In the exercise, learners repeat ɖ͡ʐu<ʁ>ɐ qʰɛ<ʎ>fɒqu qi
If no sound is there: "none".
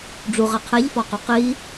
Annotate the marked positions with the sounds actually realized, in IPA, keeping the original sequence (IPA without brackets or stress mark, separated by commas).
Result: ʁ, ʎ